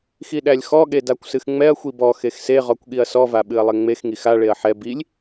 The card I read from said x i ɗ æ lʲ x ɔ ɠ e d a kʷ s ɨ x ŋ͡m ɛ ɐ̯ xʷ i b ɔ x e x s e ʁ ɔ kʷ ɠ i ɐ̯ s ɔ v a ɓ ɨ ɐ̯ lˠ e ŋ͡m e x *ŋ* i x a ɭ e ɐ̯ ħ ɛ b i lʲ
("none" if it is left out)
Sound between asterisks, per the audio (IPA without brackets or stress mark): ŋ